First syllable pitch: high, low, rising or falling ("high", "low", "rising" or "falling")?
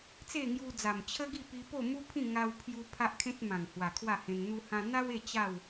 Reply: falling